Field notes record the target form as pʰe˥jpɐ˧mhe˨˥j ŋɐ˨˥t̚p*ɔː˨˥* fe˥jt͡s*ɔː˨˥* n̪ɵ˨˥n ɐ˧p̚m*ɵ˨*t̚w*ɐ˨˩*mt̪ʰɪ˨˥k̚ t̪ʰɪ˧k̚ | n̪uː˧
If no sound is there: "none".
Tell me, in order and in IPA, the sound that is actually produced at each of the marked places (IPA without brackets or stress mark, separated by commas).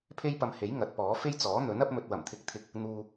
ɔː˨˥, ɔː˨˥, ɵ˨, ɐ˨˩